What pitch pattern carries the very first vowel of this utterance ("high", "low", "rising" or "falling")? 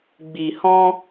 low